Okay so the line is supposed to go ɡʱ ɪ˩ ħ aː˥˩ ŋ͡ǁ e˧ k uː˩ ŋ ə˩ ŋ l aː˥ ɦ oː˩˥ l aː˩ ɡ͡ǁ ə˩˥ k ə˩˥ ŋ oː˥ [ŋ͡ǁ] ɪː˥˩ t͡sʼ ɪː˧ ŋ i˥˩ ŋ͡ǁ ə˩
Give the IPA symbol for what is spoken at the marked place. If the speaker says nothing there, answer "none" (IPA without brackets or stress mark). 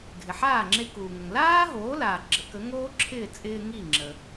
ǁʰ